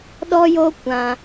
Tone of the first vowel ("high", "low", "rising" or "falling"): high